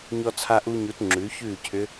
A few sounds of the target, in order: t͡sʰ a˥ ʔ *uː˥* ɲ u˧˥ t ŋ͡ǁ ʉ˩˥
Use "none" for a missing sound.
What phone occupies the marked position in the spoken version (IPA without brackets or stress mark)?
uː˥